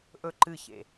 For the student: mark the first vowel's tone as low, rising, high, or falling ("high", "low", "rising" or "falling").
high